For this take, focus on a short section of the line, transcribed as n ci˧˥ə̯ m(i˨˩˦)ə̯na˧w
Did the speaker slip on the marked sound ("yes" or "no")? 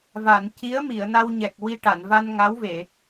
yes